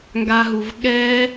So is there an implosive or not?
yes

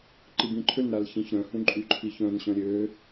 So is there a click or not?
yes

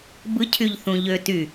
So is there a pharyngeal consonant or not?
no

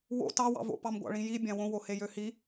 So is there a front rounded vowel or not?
yes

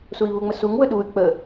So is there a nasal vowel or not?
no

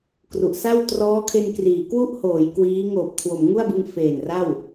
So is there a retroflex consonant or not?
no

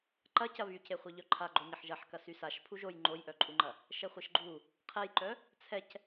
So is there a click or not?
yes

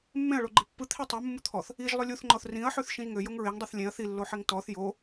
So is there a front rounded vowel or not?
yes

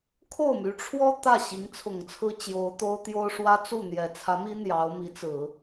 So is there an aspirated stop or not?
yes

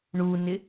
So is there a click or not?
no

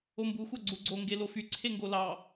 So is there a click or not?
yes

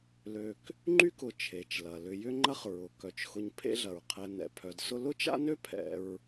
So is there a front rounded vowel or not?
yes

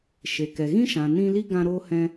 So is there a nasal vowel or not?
yes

